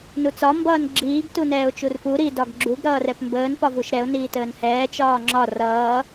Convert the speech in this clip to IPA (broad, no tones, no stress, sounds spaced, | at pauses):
n u t͡s ɒ m b ʌː n ɡ͡ǁ iː ɡ t u n ɛː ʊ̯ t͡ʃ u r p u ɾ i d ɒ ɡ ɡ͡ǁ u ɡ ɾ ʌː r ɛ p m b əː n p ɒ v u ʃ ɾ ɛ ʊ̯ n iː t əː n h ɛː t͡ʃ ɒː ŋ͡ǁ ɒ r ʌː